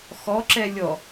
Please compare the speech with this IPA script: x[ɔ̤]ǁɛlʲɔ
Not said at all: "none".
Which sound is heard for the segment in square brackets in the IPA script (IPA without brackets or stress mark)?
ɔ